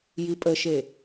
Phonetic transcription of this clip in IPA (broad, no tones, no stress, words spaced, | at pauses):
jipʼəʃe